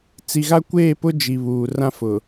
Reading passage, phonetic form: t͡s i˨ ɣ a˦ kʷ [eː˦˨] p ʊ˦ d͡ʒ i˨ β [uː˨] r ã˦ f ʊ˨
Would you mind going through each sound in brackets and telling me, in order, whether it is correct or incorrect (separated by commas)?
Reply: correct, correct